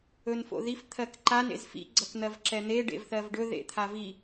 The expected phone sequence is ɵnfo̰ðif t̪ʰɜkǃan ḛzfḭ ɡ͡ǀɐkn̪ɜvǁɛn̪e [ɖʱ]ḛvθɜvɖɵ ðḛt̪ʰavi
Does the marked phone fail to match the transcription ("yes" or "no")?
yes